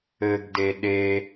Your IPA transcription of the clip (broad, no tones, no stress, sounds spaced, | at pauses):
ɘ ɡ d e ɗ e